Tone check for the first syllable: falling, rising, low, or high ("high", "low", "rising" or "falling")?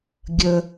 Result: low